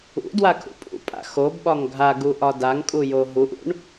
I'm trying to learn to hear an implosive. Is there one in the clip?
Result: yes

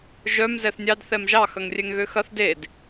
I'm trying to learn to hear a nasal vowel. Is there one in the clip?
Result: no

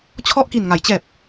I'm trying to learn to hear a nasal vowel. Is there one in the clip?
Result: no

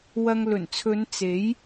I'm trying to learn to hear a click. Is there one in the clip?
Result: no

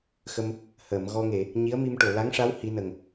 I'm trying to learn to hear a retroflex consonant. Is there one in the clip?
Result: yes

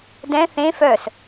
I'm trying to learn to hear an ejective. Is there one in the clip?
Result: no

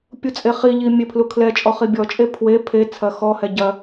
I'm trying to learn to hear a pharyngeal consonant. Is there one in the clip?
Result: no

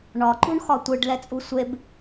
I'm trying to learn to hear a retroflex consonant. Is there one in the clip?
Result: yes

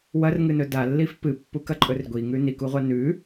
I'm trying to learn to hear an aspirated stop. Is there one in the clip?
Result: no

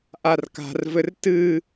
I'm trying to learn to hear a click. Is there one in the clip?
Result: no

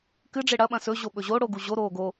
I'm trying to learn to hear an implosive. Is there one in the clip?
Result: yes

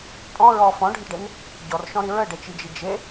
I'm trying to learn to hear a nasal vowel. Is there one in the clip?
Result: yes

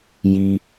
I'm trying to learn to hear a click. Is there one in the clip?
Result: no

